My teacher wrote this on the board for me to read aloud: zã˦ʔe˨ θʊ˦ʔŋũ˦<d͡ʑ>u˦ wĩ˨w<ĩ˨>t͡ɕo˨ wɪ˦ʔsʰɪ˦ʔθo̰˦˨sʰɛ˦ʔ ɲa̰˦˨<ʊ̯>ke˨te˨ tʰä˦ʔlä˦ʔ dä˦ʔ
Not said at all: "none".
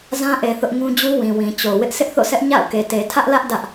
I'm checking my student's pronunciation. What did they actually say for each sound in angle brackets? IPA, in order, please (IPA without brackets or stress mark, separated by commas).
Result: d͡ʑ, ĩ˨, ʊ̯